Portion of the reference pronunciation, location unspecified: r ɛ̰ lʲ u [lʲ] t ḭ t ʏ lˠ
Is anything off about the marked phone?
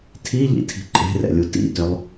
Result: yes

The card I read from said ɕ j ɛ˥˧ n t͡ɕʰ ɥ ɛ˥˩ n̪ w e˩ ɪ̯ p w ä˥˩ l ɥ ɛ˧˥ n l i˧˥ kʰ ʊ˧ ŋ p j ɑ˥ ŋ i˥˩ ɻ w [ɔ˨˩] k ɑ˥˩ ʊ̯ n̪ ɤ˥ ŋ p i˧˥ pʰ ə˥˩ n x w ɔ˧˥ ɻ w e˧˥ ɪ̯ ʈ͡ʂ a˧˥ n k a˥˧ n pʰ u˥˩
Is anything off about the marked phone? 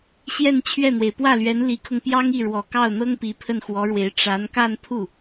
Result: no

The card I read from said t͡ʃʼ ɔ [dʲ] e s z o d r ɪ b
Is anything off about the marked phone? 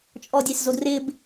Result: no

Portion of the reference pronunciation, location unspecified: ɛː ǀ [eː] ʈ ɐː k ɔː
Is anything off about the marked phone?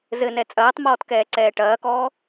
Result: yes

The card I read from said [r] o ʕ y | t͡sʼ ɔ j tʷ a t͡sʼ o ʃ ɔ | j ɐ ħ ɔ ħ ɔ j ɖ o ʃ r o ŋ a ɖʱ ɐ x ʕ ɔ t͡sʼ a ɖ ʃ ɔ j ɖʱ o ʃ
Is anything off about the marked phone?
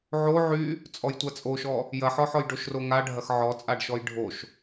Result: yes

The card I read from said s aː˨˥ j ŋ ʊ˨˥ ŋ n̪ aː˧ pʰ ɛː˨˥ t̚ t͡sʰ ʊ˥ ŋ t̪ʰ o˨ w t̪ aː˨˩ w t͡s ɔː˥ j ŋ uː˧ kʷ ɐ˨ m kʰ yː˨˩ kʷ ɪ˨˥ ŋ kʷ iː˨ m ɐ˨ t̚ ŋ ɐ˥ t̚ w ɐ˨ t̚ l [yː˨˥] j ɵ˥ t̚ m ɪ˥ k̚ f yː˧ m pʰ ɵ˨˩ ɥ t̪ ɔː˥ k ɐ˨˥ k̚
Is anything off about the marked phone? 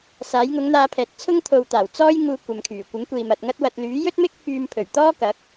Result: no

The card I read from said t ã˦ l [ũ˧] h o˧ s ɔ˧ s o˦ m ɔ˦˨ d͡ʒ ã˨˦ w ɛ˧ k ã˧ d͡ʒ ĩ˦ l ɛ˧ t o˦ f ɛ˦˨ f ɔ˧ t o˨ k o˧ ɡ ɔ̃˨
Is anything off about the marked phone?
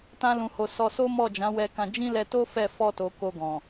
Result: no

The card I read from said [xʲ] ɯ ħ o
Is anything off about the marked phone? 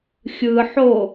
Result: no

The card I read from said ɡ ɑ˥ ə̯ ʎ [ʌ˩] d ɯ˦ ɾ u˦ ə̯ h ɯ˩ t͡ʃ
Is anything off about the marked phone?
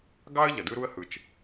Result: no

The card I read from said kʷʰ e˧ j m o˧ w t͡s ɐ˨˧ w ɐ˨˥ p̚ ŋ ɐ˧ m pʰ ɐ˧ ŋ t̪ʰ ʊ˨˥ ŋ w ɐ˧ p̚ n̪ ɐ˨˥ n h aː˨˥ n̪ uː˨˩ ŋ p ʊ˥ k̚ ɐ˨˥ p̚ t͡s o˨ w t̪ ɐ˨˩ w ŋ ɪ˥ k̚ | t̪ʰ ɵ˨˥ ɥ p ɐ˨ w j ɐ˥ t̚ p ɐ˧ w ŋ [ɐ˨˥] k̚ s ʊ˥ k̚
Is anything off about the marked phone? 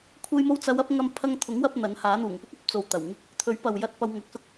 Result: no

